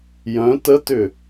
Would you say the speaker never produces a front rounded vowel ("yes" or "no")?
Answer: no